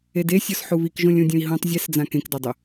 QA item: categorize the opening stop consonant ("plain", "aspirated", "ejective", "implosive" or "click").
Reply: plain